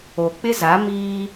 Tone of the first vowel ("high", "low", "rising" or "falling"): low